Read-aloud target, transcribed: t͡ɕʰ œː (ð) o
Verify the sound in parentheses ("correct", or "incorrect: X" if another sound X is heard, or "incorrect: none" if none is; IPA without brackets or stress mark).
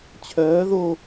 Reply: correct